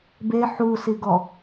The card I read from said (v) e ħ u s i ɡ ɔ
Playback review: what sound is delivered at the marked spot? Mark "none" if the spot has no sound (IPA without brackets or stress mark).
b